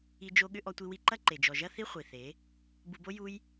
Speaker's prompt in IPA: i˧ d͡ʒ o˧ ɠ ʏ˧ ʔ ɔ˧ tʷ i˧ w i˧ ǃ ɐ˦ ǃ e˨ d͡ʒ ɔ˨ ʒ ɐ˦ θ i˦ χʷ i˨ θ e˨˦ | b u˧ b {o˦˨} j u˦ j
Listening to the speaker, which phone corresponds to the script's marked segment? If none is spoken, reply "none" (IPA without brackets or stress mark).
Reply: o˦